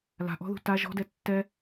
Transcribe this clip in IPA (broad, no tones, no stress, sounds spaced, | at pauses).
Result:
l a̤ ʔ ɔ̤ ð ṳ t a ʒ ɔ̤ d ɛ tː ɛ